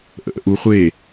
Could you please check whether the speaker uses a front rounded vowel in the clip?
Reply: no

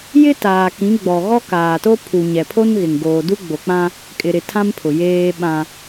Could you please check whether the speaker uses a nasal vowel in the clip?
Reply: yes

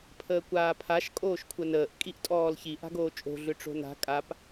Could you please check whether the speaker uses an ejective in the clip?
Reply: yes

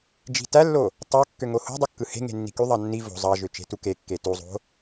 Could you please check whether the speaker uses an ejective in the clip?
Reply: no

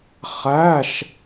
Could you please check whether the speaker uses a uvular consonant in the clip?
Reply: yes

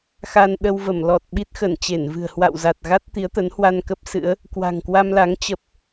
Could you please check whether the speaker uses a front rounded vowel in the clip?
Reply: no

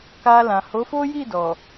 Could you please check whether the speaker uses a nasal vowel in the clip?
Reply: yes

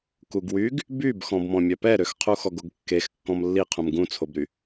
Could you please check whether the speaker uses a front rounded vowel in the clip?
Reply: yes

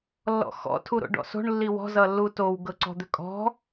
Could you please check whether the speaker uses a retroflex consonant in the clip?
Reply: yes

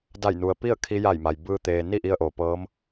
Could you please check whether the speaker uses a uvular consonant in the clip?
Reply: no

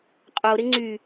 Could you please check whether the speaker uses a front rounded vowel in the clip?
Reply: yes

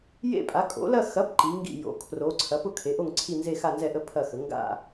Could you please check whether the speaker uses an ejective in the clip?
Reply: yes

